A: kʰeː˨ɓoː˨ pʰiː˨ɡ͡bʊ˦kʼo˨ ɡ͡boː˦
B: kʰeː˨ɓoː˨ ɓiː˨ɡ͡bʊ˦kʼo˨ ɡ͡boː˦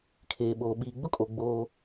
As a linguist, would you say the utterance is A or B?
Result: B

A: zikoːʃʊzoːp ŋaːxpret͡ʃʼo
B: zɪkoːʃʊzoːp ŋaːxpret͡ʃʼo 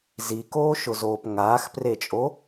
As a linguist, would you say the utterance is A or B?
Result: A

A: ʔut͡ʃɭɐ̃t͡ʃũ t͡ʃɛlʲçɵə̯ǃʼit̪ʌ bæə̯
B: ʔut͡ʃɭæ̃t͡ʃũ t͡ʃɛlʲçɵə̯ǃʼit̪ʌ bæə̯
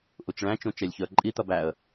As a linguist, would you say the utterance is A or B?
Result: B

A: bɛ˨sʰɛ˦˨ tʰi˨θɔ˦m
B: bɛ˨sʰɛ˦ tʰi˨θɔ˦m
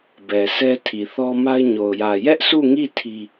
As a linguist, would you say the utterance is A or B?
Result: B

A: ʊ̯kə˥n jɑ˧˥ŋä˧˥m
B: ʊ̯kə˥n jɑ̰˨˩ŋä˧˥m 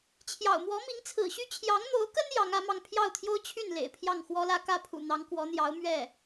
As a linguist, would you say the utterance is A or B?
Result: A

